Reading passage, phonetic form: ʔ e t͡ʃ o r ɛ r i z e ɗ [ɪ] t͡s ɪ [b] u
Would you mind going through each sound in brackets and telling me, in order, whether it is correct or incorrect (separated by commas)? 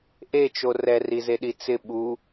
incorrect, incorrect